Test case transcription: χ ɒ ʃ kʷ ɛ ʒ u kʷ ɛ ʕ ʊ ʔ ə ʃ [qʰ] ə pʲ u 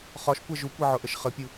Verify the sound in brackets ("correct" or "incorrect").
incorrect